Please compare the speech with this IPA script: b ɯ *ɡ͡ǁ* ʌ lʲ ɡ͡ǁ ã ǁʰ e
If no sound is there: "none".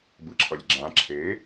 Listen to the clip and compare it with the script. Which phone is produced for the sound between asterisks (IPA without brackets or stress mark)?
ǁʰ